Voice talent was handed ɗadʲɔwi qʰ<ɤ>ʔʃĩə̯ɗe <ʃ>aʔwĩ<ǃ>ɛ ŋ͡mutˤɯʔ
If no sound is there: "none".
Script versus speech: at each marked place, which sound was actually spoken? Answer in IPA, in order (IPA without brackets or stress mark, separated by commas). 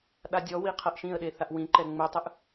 ɤ, θ, ǃ